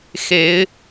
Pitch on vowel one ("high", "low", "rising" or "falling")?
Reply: rising